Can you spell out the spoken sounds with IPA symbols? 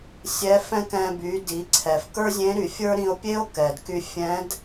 sʲ ɛ˧˥ f ɛ̃˥ k ɛ̃˧ b y˩˧ d i˩˧ ǀʰ ɛ˩ f k ə˞˥ zʲ ẽ˧˥ ɾ y˩ fʲ ə˞˥ ɾ ĩ˧ o̯ pʲ e˥ o̯ k ɛ˩ d k y˧ fʲ ɛ̃˧˥ d

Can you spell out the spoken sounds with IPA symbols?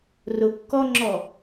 r ʊ kː ɔ ŋ͡ǁ ɔ

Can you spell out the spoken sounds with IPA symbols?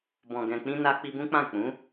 b ɔ̃˨ ɡ ɛ̃˨ k͡p ĩ˧ n a˧ k͡p i˧ b ũ˦ k͡p ã˦˨ k͡p ũ˨˦

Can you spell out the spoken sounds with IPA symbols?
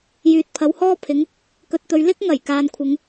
j yː˨ t̚ pʰ ɐ˨˥ w h ɔː˥ pʰ ɪ˨˧ ŋ | k ɵ˨ t̚ t̪ ɵ˨ ɥ l ɪ˥ k̚ ŋ ɐ˨˩ j k aː˨ n kʷʰ ɪ˨˧ ŋ

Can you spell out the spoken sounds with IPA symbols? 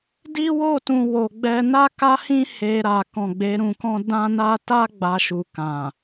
d i˦ w o˦˨ t ũ˨ w o˨ ɡ͡b ɛ˧ n a˦ k a˦ h ĩ˦ h e˧ ɾ a˨ k ɔ̃˨ ɡ͡b e˨˦ ɾ ũ˧ k ɔ̃˦ d ã˦ n a˦ t a˦ ɡ͡b a˧ ʃ u˨ k ã˨

